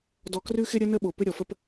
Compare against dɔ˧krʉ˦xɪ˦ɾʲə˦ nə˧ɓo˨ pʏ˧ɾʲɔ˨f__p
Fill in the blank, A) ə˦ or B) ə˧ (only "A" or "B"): B